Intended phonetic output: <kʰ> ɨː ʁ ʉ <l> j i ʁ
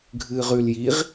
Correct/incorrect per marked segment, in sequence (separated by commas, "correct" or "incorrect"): incorrect, correct